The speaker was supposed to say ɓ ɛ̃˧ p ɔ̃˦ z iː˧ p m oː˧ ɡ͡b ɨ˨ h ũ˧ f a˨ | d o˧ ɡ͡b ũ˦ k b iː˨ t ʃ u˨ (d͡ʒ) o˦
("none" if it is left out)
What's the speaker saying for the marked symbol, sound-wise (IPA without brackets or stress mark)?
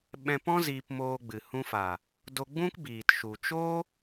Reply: t͡ʃ